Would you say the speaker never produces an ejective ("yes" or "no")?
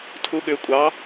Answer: no